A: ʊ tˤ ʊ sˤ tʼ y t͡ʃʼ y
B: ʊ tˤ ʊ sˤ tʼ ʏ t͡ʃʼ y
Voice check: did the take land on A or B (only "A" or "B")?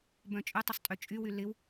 B